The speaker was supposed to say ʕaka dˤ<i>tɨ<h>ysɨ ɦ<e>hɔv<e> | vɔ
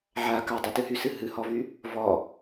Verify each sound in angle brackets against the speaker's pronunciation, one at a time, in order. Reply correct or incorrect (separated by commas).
incorrect, incorrect, incorrect, incorrect